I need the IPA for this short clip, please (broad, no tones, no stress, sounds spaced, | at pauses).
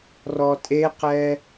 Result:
r ɔ tʼ e q ɛ